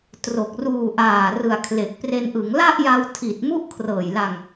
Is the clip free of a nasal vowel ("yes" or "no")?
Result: yes